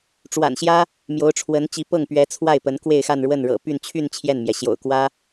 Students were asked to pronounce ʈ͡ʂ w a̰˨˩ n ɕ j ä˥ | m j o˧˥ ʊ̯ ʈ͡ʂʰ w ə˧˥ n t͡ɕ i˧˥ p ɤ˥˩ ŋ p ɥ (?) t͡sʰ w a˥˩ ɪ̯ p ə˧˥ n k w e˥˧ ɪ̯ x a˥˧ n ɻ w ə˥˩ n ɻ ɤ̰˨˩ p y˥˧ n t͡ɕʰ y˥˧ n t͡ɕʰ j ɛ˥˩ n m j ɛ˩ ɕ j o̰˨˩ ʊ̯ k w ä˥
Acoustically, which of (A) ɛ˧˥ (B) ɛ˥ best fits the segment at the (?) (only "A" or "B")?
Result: A